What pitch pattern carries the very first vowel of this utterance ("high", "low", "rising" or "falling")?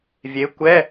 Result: rising